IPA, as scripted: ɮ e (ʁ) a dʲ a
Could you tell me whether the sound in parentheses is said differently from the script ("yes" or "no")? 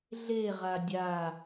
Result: no